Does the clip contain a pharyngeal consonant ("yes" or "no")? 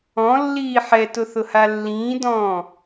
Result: yes